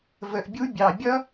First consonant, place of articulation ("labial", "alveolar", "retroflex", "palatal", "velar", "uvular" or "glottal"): labial